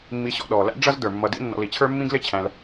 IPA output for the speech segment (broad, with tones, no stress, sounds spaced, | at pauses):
mː i˨ ɕ ɔ̰˨ ɗ ɔː˩ l æ̰˦ ɖ͡ʐ ʌ˦ z d ə˞˩ mː ʌ˨ d ḭ˦ nː ɔ̰˨ l i˨ t͡ɕʰ ə˞˥ mː ĩ˥ ɡ l ɪ˦ t͡ɕʰ æ̃˨ l